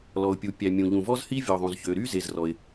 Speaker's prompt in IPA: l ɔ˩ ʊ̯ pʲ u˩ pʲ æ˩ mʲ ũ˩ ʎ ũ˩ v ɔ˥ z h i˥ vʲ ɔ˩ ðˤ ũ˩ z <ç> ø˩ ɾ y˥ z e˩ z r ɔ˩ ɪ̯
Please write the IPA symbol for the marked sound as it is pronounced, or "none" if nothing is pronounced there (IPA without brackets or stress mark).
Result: ç